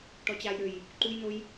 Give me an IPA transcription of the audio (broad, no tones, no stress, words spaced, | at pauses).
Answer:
ʈɔt͡ɕajɾøj | ǃujnoj